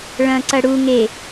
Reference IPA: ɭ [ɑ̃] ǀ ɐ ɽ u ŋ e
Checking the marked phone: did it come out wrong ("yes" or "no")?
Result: yes